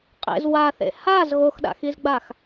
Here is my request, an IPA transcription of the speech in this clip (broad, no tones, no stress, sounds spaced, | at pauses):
qʼ ḛ z w a θ ḛ h a z ɣ o x ɗ a̰ x i z ɡ͡b a x